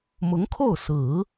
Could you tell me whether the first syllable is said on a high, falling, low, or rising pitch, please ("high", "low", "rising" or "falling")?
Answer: rising